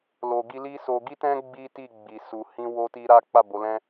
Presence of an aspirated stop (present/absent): absent